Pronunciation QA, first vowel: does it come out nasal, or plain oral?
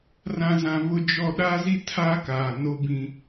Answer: nasal